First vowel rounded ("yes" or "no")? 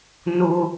yes